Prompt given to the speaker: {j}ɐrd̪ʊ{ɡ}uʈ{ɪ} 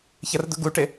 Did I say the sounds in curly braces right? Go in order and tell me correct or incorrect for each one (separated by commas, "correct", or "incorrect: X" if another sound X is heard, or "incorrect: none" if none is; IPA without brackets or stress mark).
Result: incorrect: ç, correct, correct